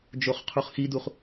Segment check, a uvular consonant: present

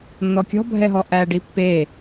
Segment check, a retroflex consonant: present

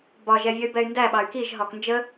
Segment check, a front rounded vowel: present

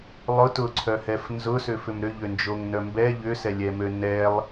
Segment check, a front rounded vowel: present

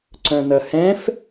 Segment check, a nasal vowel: present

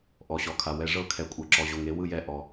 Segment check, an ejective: present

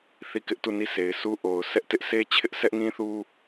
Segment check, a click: absent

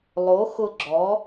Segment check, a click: present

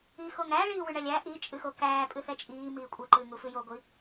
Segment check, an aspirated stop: absent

